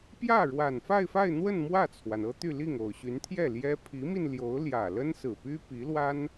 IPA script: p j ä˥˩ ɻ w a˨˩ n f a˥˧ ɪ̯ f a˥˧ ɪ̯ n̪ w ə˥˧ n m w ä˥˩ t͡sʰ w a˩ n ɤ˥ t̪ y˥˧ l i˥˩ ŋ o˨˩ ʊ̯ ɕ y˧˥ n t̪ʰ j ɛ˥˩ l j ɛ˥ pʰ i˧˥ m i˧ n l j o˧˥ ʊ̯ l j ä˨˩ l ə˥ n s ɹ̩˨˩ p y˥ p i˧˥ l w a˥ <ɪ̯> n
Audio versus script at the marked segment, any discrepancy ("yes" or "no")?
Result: yes